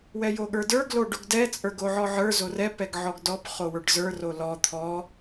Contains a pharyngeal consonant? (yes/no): yes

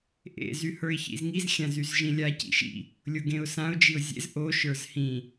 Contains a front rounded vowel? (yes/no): yes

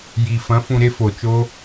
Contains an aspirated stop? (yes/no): no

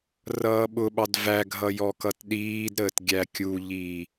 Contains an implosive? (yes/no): yes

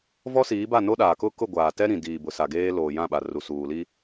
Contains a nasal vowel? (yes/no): yes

